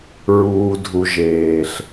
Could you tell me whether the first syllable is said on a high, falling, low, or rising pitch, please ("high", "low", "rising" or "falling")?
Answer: low